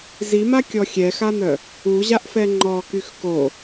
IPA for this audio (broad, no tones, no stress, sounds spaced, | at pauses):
z i m a kʲ ɔ xʲ ɛ x a n̪ œ | u ʑ a ʔ f ɛ ŋ͡ǃ ɔ k y x k o